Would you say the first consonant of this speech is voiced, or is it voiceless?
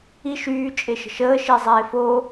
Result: voiceless